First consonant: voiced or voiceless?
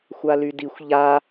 voiceless